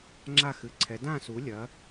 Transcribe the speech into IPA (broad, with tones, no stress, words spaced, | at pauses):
ŋ͡ǁa˦˨xɨ˩˧ǀʰɛ˩˧ dã˦˨su˩˧lʲɐ˩˧